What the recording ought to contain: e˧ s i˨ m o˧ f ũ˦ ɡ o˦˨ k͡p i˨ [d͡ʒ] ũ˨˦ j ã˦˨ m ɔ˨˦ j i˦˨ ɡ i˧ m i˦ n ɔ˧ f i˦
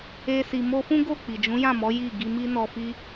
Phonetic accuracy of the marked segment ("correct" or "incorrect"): correct